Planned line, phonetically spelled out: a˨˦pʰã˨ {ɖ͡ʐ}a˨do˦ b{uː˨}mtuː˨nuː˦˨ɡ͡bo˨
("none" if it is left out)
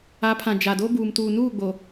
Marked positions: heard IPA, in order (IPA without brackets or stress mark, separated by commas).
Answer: d͡ʒ, uː˨